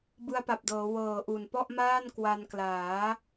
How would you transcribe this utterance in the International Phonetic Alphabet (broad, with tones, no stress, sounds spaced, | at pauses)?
b ɯ˧ a̯ p a˨˩ p̚ d ɤː˩˦ w ɤː˨˩ ʔ u˨˩ n p ɔ˥˩ ʔ m aː˥˩ n k w a˧ n k l aː˩˦